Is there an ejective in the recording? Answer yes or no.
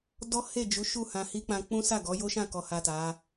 no